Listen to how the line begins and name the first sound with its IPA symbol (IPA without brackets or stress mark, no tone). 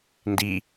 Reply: n